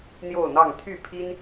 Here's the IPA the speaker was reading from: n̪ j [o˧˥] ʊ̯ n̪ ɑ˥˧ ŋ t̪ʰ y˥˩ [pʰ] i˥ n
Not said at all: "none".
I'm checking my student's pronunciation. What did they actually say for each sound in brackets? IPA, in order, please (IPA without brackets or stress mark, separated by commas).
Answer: o˥˧, pʰ